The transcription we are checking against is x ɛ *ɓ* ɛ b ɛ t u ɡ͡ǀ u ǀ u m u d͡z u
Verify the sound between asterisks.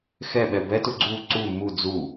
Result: correct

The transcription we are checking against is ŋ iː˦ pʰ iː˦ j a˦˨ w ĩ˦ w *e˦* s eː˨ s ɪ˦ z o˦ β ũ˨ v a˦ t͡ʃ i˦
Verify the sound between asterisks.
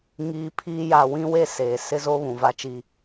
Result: correct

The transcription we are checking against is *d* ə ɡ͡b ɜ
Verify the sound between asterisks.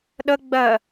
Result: incorrect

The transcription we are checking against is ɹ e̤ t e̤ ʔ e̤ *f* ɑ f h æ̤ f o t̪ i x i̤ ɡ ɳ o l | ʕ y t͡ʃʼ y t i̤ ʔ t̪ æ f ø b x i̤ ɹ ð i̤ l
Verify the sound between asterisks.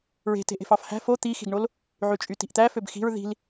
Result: correct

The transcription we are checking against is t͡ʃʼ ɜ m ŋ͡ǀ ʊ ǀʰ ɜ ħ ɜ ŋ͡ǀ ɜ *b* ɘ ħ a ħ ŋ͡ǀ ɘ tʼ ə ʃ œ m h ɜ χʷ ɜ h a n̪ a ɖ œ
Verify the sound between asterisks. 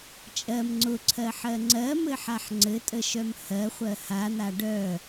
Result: incorrect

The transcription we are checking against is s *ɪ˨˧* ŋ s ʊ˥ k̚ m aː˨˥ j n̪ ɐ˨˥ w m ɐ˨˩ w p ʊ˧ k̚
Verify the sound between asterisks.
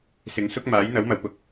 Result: correct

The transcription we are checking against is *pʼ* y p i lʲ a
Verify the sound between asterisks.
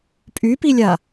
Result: correct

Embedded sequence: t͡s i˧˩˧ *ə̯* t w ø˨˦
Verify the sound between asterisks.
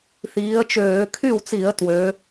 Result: correct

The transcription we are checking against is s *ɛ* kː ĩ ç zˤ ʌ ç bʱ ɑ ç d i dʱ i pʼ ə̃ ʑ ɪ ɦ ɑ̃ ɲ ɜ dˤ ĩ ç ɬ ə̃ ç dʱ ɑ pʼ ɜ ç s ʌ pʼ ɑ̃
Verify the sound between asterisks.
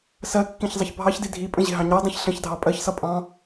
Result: incorrect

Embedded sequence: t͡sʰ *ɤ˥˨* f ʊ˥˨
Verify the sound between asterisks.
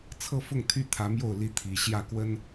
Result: correct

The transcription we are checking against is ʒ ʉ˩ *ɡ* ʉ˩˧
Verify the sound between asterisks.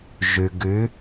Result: correct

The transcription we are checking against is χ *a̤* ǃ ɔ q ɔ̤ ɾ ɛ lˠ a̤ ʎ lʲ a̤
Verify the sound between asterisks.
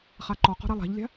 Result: incorrect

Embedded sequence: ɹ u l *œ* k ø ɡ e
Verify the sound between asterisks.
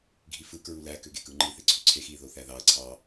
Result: incorrect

